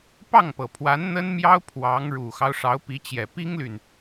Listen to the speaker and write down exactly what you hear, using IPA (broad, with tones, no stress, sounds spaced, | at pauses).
p ɑ˥˩ ŋ p ɤ˨˩ pʰ w a˧˥ n n̪ ə˥ n m j ɑ˥ ʊ̯ pʰ w ɑ˧˥ ŋ ɻ u˨˩ x ɑ˦ ʊ̯ ʂ ɑ˧˥ ʊ̯ p i˧˥ t͡ɕ j ɛ˨˩ p i˥ ŋ l y˨ n